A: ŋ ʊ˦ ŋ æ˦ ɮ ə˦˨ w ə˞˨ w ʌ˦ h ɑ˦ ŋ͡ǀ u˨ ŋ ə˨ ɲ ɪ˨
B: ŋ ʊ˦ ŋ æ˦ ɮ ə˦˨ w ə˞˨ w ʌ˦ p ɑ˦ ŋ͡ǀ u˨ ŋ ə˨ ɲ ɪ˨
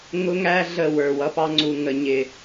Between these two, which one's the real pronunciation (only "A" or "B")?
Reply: B